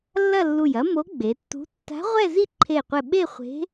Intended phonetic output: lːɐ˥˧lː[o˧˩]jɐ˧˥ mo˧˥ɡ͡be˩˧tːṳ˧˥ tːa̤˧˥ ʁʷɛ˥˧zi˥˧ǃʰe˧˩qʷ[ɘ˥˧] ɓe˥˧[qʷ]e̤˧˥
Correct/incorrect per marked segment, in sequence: incorrect, incorrect, incorrect

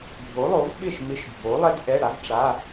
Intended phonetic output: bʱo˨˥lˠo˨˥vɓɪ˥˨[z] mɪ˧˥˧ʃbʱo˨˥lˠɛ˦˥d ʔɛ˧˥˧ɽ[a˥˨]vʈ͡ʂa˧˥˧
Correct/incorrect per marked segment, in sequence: incorrect, incorrect

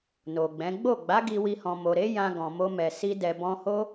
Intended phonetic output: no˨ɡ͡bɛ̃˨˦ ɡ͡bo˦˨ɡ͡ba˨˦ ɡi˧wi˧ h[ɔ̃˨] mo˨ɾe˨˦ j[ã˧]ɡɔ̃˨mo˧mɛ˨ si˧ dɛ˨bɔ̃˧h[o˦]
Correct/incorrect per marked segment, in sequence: correct, correct, correct

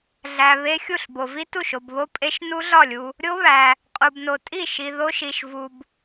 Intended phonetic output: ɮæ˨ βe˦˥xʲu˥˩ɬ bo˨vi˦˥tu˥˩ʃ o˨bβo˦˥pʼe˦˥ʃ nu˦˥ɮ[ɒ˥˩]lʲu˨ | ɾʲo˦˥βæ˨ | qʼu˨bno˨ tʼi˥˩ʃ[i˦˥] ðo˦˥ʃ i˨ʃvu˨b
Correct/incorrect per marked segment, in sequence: correct, incorrect

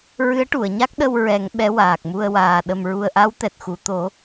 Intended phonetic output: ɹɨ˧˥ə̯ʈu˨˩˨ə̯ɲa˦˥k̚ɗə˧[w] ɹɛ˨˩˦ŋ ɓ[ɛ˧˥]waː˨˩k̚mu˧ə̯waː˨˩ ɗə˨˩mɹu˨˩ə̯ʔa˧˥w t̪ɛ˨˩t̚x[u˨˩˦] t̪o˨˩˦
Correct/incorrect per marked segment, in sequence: correct, correct, incorrect

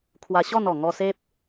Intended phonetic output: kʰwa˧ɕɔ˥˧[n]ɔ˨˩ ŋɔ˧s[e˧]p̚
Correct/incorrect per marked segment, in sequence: correct, incorrect

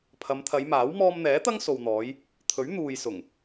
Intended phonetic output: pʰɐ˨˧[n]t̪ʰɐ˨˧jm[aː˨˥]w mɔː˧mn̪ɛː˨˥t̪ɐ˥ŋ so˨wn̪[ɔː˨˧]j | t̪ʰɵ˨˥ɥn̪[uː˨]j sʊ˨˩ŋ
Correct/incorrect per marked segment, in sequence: incorrect, correct, correct, correct

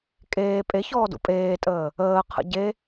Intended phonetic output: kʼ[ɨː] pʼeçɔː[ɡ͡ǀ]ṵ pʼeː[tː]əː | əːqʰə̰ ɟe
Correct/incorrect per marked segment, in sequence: incorrect, incorrect, incorrect

